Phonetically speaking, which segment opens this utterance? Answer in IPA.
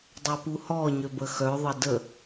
dˤ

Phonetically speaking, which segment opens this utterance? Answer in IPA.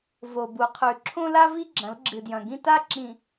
v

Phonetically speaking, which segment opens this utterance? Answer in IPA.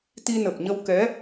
t̪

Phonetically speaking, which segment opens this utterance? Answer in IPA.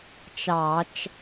t͡ʃ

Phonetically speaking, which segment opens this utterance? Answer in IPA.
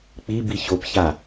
k͡p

